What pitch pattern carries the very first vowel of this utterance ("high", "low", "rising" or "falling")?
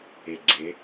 low